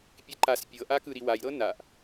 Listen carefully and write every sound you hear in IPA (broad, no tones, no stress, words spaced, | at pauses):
pʲeǃas pʲɤʔa kɯɾiwajɾɤ naʔ